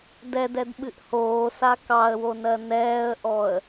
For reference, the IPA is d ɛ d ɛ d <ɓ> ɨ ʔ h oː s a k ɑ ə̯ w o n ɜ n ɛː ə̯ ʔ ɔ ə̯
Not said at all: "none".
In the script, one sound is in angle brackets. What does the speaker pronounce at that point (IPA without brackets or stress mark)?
ɓ